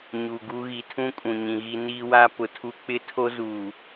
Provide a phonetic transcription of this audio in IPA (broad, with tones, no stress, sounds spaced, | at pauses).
ɲ u˨ ɡ u˦ ɣ i˨ tʰ ũ˦ kʼ ũ˨ ɲ ĩ˨ ɣ i˦ n iː˦ w a˦ p ʊ˨ tʰ u˦ k͡p ɪ˦ tʰ o˦ z uː˨